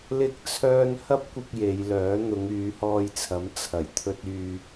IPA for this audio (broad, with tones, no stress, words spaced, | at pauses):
lɪ˥k̚t͡sʰœː˥n hɐ˥p̚kʷɪ˧k̚ je˨˧jlœː˨˥ n̪ʊ˨˧ŋyː˨˧hɔː˧jt͡sʰɐ˨˥m t͡sʰɐ˨˩jt̪ʰɵ˧t̚ yː˨